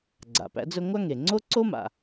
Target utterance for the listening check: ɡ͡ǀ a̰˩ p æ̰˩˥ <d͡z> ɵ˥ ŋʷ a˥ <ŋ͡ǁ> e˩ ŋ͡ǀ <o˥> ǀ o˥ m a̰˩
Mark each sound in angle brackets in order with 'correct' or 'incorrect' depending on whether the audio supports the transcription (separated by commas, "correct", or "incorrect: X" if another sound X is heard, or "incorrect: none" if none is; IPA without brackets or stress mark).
correct, incorrect: ŋ, correct